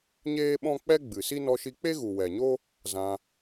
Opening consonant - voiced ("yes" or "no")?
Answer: yes